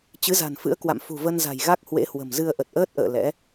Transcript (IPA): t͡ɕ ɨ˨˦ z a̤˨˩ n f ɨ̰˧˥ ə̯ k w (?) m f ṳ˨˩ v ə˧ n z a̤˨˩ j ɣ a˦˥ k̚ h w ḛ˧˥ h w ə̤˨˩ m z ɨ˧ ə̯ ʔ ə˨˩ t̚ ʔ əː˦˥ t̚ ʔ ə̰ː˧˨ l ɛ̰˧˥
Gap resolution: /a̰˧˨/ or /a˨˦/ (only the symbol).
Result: a̰˧˨